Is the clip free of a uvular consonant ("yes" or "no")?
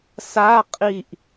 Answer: no